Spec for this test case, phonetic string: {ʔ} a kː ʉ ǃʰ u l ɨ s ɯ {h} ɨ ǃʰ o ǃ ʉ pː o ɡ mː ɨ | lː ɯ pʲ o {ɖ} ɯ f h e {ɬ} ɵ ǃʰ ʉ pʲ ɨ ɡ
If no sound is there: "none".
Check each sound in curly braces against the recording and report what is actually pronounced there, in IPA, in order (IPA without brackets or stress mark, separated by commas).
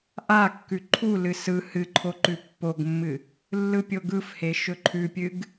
ʔ, h, ɡ, ʃ